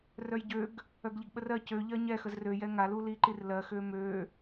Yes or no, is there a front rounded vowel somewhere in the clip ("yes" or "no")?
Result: yes